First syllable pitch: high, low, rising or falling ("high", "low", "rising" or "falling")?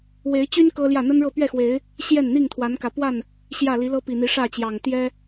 rising